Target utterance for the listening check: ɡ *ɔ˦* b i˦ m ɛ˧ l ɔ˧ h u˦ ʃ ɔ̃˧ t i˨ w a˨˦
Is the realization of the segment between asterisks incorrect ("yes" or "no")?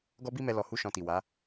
no